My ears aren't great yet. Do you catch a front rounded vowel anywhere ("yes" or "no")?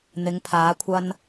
no